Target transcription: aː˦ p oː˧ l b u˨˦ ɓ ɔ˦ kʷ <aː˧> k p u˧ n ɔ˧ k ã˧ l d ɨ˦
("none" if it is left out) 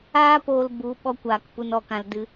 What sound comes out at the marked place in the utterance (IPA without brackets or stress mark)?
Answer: aː˧